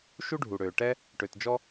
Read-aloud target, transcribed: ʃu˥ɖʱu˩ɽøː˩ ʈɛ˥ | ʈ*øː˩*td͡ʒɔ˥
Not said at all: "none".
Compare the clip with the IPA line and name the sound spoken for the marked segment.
ø˩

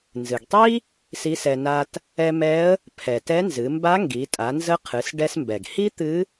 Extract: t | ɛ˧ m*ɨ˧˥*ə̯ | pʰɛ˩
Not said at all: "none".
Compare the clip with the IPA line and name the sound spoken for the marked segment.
ɛ˧˥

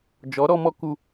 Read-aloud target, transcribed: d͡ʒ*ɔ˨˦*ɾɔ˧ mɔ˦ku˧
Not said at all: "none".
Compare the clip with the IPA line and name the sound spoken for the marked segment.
ɔ˨˦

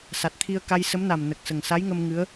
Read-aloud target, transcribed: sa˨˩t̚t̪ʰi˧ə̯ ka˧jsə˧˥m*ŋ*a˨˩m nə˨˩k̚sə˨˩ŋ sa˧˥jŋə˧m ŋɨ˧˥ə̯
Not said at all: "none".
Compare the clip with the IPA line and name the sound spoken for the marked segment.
n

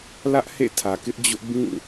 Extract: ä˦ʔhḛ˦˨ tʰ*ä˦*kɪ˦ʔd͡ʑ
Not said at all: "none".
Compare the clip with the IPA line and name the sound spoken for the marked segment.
ä˨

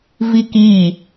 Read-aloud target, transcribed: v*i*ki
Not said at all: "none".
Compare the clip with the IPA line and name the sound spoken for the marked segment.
i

